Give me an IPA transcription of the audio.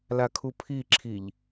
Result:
l a kʰ u pʰ i ǁʰ i ʎ

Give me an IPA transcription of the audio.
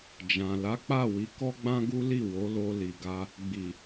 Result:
d͡ʒ ã˨ l a˨˦ k͡p a˦˨ w i˨˦ k ɔ˦ ɡ͡b ã˦ ɡ u˦ l i˦˨ w o˨˦ l o˧ l i˨ ɡ a˧ | ɡ͡b i˨

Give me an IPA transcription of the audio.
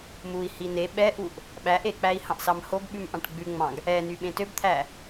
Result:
m u i̯ h i n e ɓ ɛ ʔ u ʔ | ɓ æ ʔ e k͡p æ i̯ h ɑ̃ ʔ s ɑ m h o ɡ ɓ ʉ m ʔ ɑ̃ ʈ ɡ͡b ʉ ŋ͡m ɑ̃ ɡ | ɛ n y ɓ ẽ t ø b t̪ʰ æ

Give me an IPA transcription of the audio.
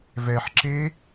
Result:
v ɛ ħ ǁ e

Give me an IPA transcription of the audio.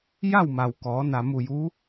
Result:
j a˥˨ w m a˩ w k ɔː˩˧ n a˩ m u˧˩ j u˧˥

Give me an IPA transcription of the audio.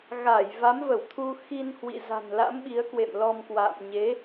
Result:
ɣ a˧˩ j v a˨˦ m v ə˧˩ w t̪ʰ u˧ x i˧ n h w ḭ˧˨ z a̤˨˩ n l a̰˧˥ m ɓ i˨˦ ə̯ k w ḛ˧˨ m l ɔ˧ m k w a̰ː˧˨ m ɲ e˨˦

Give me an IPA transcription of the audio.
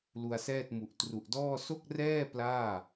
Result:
l u˧ a̯ s ɛː˥˩ t̚ m u˨˩ ʔ t r u˨˩ ʔ d ɔː˥˩ s o˥˩ k̚ r ɛː˥˩ p l aː˥˩

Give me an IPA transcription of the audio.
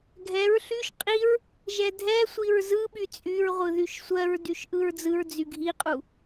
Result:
ɡʱ ɛ ɹ ɬ y ʃ qʼ i ɹ | ʒ ɛ dʱ ɛ sʷ i ɹ z ɯ ɓ y t͡sʼ y ɹ ʁʷ ɯ ð y ʃ sʷ ɜ ɹ d y ʃ ʔ ɯ ɹ d͡z ɯ ɹ d͡z y ɡʱ i qʼ u

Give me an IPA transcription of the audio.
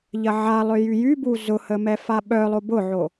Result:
ʎ ɐ ʕ a lˠ ø j y j y b u z ʊ h ə m ɛ f a ɓ œ lˠ o b ʊ ʕ o

